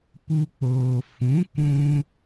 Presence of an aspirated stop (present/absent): absent